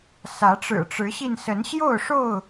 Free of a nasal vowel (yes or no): yes